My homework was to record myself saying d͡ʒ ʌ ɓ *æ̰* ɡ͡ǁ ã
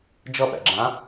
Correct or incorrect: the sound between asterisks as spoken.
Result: correct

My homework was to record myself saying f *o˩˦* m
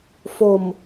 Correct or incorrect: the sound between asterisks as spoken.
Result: incorrect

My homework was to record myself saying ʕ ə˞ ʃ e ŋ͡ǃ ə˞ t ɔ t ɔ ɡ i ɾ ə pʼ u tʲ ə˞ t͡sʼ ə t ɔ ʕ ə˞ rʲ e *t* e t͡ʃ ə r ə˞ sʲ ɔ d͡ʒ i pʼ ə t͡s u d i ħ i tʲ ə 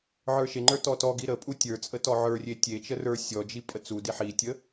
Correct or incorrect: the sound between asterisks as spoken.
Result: incorrect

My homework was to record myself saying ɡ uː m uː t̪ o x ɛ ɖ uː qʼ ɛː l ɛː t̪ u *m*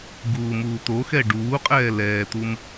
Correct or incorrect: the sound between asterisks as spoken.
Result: correct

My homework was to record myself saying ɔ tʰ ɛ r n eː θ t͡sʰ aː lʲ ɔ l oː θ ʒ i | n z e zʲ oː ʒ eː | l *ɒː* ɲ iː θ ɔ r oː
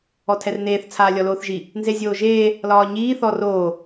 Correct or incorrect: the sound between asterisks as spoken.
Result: correct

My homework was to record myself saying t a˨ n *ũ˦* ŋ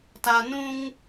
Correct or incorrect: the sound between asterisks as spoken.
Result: correct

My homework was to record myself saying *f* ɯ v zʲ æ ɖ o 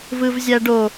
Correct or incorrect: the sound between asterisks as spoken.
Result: incorrect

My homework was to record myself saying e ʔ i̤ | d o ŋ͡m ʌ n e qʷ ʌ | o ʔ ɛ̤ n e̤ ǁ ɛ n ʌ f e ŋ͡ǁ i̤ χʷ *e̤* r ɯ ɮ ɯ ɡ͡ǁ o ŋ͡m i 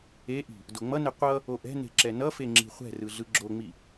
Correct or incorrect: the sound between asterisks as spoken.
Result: incorrect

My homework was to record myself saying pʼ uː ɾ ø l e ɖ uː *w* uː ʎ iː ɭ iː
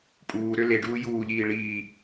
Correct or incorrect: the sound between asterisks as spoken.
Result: incorrect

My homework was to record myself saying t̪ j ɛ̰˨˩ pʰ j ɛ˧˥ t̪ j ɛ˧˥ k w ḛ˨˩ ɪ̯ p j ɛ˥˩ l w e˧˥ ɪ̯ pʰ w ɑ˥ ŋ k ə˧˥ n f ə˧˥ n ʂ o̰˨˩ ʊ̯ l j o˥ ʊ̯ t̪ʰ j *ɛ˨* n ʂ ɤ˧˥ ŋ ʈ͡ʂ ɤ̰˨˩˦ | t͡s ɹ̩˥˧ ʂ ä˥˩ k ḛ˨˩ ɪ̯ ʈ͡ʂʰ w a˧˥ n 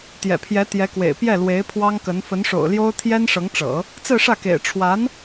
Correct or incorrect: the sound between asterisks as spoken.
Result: incorrect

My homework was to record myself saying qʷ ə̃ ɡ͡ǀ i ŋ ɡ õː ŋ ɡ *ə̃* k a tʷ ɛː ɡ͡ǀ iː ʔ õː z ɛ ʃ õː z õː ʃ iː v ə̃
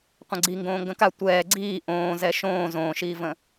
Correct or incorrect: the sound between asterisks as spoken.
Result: correct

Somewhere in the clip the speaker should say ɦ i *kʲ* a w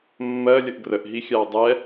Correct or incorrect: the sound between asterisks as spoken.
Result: incorrect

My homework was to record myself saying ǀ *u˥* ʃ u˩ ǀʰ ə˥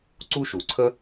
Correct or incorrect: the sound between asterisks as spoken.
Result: correct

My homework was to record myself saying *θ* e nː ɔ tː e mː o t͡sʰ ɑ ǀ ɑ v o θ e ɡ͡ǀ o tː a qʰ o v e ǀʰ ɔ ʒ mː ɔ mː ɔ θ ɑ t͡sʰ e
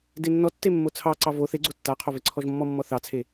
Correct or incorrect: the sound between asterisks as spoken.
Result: incorrect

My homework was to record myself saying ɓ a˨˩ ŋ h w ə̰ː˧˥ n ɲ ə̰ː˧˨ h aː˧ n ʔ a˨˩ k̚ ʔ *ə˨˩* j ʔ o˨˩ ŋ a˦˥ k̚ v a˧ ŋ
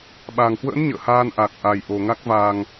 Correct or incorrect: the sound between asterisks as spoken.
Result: incorrect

